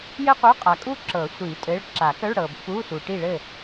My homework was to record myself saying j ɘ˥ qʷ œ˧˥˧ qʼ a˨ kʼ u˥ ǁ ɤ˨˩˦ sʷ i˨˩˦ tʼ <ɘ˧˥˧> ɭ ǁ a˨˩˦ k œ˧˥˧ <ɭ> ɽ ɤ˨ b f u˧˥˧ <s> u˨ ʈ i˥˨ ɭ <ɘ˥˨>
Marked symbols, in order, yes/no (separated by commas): yes, yes, yes, yes